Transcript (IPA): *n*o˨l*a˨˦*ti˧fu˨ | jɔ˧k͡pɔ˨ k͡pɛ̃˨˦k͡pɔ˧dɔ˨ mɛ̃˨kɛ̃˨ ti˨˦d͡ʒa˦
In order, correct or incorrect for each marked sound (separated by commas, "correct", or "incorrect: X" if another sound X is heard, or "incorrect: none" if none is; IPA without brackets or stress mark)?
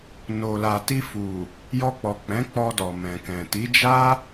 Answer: correct, incorrect: a˨